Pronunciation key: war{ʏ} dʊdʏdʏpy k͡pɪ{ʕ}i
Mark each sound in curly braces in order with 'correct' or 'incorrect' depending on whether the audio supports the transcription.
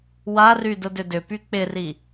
incorrect: y, incorrect: r

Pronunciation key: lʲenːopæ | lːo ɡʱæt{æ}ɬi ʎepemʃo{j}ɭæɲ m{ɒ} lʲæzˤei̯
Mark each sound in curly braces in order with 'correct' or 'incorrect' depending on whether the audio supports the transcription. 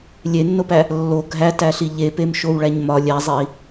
correct, incorrect: w, correct

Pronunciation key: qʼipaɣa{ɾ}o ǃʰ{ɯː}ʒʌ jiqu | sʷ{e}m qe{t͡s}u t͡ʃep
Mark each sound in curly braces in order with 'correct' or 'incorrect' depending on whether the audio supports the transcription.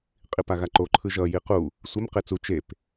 incorrect: ǃ, incorrect: ɯ, correct, correct

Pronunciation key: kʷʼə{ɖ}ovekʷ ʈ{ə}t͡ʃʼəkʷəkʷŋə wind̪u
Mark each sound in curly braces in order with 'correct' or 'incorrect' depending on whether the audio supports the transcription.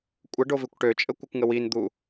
correct, incorrect: ø

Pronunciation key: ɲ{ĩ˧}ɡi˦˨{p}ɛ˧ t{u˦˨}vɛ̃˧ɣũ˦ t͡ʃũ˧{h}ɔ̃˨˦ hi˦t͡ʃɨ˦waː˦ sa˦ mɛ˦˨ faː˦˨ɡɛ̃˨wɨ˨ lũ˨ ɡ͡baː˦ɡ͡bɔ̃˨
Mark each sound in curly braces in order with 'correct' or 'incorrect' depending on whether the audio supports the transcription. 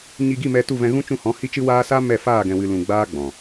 incorrect: i˧, incorrect: m, correct, correct

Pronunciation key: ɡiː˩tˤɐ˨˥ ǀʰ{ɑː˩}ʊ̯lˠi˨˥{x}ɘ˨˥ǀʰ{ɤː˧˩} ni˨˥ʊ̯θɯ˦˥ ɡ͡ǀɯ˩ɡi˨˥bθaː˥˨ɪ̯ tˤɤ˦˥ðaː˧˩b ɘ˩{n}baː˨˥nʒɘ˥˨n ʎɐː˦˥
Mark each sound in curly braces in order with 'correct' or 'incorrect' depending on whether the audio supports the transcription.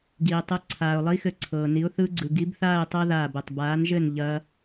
incorrect: aː˩, correct, incorrect: ɤː˩, incorrect: tˤ

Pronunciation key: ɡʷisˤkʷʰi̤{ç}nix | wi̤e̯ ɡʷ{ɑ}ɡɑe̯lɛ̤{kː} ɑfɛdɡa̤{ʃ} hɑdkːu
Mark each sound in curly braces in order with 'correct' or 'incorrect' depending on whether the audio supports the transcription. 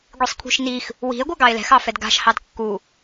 incorrect: ʃ, incorrect: a, incorrect: x, correct

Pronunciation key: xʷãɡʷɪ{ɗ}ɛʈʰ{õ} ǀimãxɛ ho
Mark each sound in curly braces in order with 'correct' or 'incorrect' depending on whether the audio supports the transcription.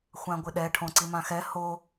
correct, correct

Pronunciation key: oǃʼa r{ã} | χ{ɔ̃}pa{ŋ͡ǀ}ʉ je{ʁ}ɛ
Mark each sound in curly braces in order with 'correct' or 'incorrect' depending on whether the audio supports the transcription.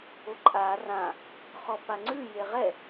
correct, incorrect: ɔ, correct, correct

